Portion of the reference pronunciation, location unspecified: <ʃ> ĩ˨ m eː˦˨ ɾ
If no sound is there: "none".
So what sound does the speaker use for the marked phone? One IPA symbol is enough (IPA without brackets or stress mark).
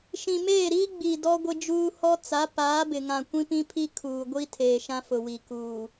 ʃ